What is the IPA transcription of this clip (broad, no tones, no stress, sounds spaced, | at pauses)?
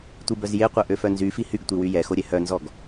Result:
tʷ i b œ z j e qʷ œ ʔ ø f œ n z y f i h y ɡ tʷ i w y j ɛ x o ɾʲ ɛ h œ n z ɔ ɡ